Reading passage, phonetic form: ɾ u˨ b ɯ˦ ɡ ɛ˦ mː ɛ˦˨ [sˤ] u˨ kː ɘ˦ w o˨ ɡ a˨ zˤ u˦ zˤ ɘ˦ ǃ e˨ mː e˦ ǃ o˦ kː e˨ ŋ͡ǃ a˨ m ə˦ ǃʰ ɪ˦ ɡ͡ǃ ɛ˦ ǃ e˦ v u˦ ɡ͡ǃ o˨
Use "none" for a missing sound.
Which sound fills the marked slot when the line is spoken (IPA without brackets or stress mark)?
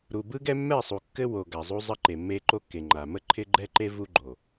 sˤ